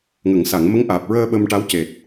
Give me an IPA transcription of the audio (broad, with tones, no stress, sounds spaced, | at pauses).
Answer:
ŋ ə˨˩˨ ŋ s a˨˩˨ ŋ m ə˧˥ ŋ ʔ aː˨˩ p̚ ɹ əː˧ ɓ ə˧ m ʈ a˧˥ w c e˨˩ t̚